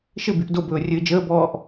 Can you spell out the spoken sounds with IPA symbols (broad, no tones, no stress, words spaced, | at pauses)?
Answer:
ʃɘbyʔ dobɵː rʲɘːd͡ʒəːbɔːʔ